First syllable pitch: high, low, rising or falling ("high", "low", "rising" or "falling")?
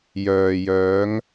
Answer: low